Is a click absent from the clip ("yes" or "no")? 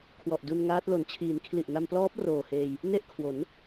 yes